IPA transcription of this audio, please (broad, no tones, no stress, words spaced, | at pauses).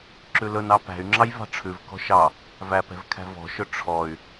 ǁʉlɵnɑ pæ̤y̯ŋ͡ǁɑj vɑ̤ʈ͡ʂʰʉvkɔ̤ ʃɑ | væpɛ̤v kʰæ̤vɔ̤ʃɵ ʈ͡ʂʰɔy̯